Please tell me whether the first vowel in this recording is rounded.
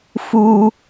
yes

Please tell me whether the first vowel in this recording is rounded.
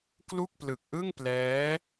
yes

